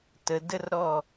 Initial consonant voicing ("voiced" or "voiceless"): voiceless